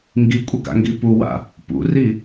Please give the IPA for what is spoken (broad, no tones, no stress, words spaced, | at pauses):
ŋɡikʷʼɘɡa̰ŋɡi puwa̰ | pṵri